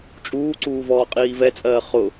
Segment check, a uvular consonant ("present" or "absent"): present